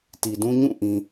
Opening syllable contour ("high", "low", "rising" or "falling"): low